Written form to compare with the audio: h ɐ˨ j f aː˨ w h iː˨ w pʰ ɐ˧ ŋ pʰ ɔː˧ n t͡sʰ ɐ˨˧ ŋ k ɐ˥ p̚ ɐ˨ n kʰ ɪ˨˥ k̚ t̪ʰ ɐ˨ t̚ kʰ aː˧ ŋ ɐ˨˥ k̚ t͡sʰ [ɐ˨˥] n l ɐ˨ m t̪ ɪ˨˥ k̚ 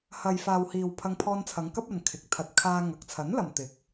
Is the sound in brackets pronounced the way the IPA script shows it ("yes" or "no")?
yes